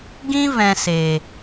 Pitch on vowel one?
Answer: high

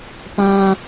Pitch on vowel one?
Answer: low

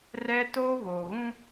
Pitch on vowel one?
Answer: high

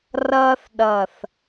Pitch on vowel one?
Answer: high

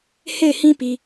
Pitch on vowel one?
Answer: falling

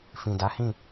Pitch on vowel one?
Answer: low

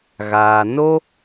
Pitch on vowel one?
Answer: low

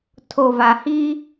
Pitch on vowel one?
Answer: low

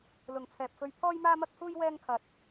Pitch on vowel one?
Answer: low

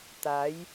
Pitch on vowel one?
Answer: rising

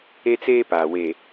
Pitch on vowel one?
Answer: high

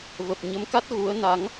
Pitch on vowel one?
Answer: low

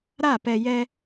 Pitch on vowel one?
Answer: falling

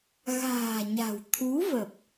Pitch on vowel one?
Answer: low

